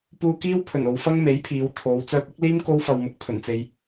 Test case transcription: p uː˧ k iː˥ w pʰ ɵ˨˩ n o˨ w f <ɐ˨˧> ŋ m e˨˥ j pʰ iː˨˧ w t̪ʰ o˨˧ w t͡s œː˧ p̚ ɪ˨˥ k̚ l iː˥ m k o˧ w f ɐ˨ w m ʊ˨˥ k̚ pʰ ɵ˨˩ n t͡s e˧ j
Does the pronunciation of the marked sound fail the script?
yes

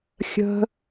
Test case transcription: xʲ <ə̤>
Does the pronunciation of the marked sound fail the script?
no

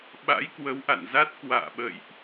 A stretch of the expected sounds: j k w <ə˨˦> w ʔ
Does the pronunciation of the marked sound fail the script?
no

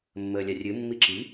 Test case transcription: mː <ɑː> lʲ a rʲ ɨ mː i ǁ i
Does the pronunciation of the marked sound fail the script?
yes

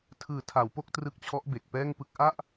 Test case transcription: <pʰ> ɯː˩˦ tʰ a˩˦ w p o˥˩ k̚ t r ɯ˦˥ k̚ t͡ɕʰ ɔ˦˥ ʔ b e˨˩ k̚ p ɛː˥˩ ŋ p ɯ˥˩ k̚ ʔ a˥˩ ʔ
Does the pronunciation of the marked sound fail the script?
yes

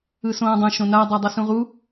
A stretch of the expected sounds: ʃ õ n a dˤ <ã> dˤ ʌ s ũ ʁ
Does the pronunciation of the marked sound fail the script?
yes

